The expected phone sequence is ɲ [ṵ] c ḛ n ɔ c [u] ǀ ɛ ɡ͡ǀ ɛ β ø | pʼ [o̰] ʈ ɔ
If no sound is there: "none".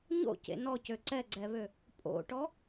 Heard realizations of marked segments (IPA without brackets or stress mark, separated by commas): o̰, ø, o̰